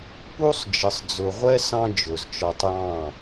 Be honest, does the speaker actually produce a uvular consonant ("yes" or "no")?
yes